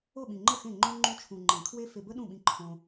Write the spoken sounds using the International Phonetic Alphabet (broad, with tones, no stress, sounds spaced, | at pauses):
o˦˨ ɓ ĩ˨ ŋ͡ǃ ə˦˨ x ẽ˦˨ ŋ͡ǃ õ˧ ŋ͡ǃ u˧ t͡ʃʰ ũ˨ ŋ͡ǃ ẽ˨ kʰ w e˦ f e˧ b ə˦ ɗ ũ˦˨ ɓ ĩ˧ ǃʰ õ˧